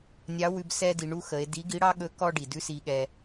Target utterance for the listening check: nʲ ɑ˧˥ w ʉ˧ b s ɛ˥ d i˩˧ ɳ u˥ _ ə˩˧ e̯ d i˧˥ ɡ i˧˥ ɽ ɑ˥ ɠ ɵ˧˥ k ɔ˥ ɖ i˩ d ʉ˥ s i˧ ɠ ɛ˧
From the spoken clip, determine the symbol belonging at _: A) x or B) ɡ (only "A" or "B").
A